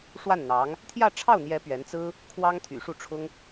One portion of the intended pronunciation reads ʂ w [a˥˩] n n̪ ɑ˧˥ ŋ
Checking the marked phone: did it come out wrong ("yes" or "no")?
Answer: no